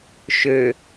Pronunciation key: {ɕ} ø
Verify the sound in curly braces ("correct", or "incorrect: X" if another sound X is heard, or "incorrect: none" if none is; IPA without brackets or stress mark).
incorrect: ʃ